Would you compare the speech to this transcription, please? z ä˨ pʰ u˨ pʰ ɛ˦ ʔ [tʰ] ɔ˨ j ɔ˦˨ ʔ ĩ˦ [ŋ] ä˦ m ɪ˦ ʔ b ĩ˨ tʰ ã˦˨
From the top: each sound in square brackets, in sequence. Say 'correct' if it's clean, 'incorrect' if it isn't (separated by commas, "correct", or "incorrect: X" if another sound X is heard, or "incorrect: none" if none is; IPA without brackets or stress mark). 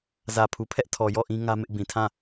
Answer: correct, correct